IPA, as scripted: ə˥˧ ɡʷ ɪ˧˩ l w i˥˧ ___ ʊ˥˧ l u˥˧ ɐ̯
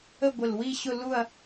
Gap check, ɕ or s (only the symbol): ɕ